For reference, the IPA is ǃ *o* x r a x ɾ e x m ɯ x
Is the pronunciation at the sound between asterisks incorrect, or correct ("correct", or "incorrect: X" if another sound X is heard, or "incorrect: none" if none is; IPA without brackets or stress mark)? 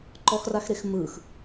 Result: incorrect: ɔ